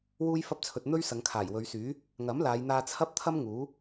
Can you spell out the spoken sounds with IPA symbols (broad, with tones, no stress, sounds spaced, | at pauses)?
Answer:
w uː˥ j f ɐ˥ p̚ t͡sʰ ɵ˧ t̚ n̪ ɵ˥ ɥ s ɐ˨˧ ŋ kʰ aː˨˩ j w ɵ˨˧ ɥ s yː˨˥ | ŋ ɐ˨˥ m l aː˨˧ j n̪ aː˧ t͡sʰ ɐ˥ p̚ t̪ʰ ɐ˥ m ŋ uː˨˥